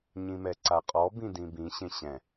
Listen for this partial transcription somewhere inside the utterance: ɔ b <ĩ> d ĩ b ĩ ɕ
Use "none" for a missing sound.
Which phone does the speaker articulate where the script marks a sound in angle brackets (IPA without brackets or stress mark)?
ĩ